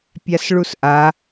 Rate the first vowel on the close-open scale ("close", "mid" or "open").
open